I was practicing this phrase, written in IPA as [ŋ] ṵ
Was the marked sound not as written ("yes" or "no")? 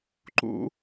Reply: yes